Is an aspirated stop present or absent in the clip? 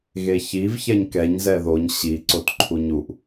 present